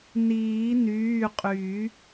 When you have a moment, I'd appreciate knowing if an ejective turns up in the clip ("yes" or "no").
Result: yes